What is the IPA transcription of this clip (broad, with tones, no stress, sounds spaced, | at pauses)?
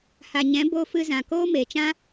h a˨ ɲ ɛ̃˨˦ b oː˧ f ɨ˧ z ã˨ k oː˦ m eː˨ t͡ʃ ã˦